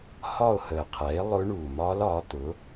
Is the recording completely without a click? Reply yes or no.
yes